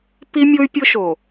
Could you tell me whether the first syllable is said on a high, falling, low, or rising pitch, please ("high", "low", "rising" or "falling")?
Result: high